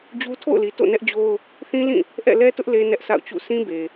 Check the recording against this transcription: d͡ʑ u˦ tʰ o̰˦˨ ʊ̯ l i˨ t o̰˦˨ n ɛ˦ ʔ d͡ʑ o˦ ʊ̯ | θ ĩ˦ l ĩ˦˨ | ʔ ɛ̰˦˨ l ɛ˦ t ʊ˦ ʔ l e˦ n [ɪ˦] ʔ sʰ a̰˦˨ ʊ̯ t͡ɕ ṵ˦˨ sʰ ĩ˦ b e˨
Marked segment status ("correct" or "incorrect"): incorrect